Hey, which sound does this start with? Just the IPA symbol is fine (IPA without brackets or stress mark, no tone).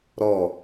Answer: ɾ